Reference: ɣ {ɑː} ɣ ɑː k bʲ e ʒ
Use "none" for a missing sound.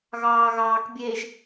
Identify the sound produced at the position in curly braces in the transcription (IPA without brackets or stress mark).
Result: ɑː